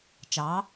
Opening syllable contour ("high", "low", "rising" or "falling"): rising